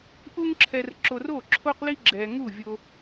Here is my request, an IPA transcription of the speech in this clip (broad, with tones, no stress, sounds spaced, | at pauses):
ʔ u˥ ŋ ǁʰ ɛ˧ r ǁ o˧ r o˥˩ ǁʰ o˥ q l i˥ ɡ͡ǁ ɛ˧ ŋ u˥˩ vʲ o˧